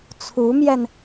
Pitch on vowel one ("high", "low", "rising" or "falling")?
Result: rising